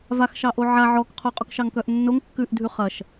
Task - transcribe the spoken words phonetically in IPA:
vaxʃɑʔo ʕa ʕɔkqʰo qʼokʃɑŋkœʔnːoŋ kːʉʔdʱʉ χɐʃ

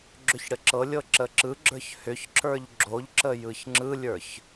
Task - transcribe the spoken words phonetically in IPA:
ɡ͡ǁʏçɽəǁɤlʲɤ ǁəǁɯɡ͡ǁə˞ç hʏçǁə˞ʎ ɡ͡ǁoʎǁə jɯçŋ͡ǁɯlʲə˞ç

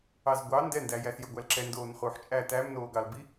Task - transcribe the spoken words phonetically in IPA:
ɑzɡʷɑ ndɛndæjæs jɵɡʷælǁɛndoːn χuːħt͡ʃʼæ tæmnoːɡɑlbi

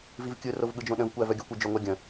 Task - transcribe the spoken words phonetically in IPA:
vivkʲɯ rovɠɯd͡ʒõɗə̃v kʷævœɡʲœkʷ ɯd͡ʒoŋʷæɡʲə̃

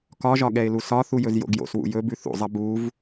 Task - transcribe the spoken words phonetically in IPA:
kɒʒɒ ɠɛɪ̯lusɒθu jɵzjo̰ɡjo̰swṵ jɵbʉ θṵzˤɐ buv

